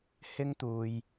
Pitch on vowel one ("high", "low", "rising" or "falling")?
high